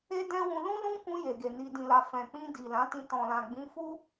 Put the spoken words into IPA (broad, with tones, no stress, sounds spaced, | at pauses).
e˦ d ɛ̃˦ w ũ˧ l ũ˦ l ũ˦ k ũ˧ j e˨ ɡ e˨ n i˨ d ĩ˨ l a˨ f ɛ̃˨ k͡p ĩ˧ d i˨ l ã˨˦ t ĩ˧ t ɔ̃˨ l ã˨ ɡ͡b ĩ˨˦ f u˦